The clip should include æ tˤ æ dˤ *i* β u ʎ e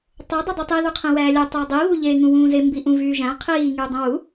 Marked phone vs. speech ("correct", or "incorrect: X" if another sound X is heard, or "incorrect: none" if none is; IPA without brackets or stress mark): correct